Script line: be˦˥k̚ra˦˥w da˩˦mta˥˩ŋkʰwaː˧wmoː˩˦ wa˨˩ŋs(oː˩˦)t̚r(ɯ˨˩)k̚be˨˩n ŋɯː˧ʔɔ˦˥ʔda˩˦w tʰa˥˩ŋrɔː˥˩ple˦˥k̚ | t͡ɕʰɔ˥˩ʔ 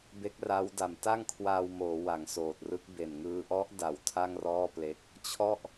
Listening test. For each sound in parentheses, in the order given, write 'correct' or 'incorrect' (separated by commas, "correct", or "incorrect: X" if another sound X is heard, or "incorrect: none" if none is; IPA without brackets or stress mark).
incorrect: oː˨˩, incorrect: ɯ˦˥